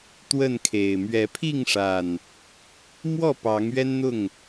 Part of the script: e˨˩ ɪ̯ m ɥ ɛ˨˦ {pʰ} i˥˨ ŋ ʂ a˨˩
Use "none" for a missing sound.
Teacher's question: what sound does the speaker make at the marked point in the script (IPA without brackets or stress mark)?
pʰ